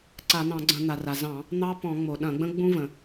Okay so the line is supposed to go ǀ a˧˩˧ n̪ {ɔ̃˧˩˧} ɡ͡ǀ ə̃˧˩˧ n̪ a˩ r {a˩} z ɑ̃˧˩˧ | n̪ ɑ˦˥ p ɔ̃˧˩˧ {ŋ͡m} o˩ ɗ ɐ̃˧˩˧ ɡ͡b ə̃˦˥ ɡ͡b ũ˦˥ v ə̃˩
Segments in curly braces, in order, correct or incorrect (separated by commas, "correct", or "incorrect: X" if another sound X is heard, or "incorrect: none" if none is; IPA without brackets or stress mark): incorrect: ɑ̃˧˩˧, correct, correct